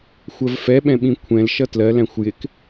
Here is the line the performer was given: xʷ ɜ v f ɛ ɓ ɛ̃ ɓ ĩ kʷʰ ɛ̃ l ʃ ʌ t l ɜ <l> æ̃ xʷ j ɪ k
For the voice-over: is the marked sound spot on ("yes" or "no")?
yes